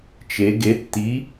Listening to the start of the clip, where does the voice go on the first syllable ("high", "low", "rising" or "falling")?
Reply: rising